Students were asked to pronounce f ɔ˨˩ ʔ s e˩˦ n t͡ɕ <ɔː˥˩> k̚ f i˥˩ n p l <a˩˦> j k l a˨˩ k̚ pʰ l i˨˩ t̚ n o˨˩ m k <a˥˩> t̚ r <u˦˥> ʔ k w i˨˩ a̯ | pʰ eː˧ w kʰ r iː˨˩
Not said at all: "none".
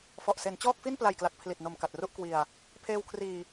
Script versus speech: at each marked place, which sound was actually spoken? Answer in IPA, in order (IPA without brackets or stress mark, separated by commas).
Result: ɔː˥˩, a˨˩, a˨˩, u˥˩